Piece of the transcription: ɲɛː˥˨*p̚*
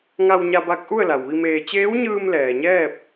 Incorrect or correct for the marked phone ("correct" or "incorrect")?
correct